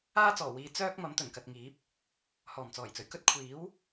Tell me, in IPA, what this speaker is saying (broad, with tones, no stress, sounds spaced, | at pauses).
aː˥ t͡s ɔː˨˩ w iː˨˧ t͡s œː˥ k̚ m ɐ˨˥ m t̪ ɵ˨˩ n k ɐ˨ t̚ ŋ iː˨˥ p̚ | h ɔː˨˩ m t͡s ɔː˨˩ j t͡s ɵ˨˩ ɥ k ɵ˥ t̚ kʷʰ iː˨˥ w